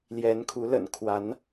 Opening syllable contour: rising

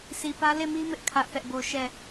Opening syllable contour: low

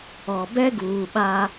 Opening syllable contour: low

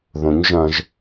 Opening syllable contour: rising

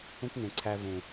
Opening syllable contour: high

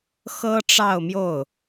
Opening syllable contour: high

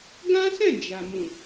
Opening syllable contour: high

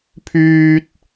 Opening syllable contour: high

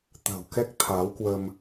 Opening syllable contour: low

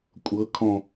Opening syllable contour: rising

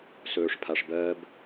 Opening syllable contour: low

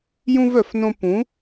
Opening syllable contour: high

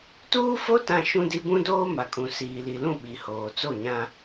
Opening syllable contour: high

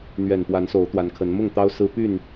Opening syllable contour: low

